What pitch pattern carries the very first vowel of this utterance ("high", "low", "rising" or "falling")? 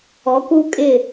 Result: rising